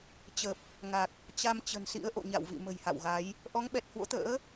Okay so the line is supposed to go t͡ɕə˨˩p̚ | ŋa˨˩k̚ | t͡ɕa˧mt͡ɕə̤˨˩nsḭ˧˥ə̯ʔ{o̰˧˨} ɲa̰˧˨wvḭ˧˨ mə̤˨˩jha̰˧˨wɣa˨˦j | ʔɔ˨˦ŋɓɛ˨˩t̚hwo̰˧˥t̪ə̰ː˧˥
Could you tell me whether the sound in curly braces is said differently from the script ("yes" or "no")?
no